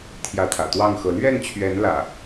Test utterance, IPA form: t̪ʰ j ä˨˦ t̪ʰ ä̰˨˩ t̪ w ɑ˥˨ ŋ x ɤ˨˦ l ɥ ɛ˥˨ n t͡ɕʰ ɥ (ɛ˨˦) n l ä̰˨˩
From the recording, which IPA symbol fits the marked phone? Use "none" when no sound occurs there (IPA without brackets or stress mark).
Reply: ɛ˨˦